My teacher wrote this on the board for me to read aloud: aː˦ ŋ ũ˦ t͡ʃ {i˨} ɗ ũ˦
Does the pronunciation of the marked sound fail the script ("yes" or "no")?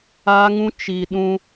no